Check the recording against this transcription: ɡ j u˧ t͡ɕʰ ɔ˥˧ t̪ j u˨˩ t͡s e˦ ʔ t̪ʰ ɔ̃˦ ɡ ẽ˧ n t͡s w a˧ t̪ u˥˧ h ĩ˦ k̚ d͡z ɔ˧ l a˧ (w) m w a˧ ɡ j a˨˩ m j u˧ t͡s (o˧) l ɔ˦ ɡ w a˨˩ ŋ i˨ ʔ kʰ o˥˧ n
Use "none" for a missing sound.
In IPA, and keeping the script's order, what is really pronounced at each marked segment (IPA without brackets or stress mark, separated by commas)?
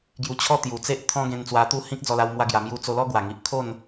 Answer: w, o˧